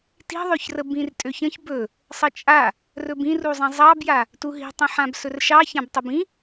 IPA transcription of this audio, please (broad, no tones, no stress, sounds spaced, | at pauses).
t i̤ ðˤ ø ç r ə b ĩ r tʼ ø ç ə̃ ç b ɵ | sˤ ə t͡ʃʼ a | r ɵ b ĩ r u zˤ ĩ zˤ ɑ b j a | t u ɦ i̤ tˤ ə̃ ħ ã b s ɵ r ʃ ɑ ç ã b tˤ ə b ĩ